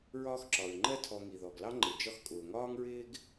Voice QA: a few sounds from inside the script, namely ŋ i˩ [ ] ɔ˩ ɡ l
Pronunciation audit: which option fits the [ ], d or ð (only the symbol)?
ð